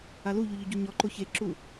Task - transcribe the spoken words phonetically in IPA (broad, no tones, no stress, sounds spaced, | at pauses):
a l u ʎ u ʎ ʊ ɟ u ɲ ɔ ǃ o ç e ǁ u